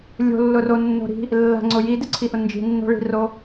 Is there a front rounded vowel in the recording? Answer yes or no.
no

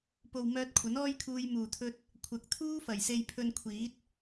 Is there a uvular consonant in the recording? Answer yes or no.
no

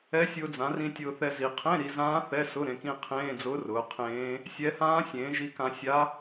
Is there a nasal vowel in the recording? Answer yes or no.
yes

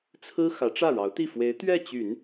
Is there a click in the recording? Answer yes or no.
no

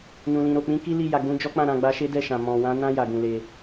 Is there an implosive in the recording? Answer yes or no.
no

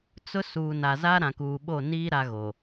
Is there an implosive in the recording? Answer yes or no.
yes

